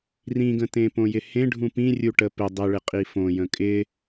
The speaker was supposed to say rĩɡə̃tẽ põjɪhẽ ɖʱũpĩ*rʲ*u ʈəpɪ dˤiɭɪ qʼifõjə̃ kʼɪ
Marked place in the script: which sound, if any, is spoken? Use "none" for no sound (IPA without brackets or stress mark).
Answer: rʲ